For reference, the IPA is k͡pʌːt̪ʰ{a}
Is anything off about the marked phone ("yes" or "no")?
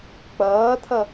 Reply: yes